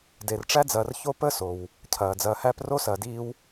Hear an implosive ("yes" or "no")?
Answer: no